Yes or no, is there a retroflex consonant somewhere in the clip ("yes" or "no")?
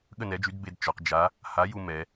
no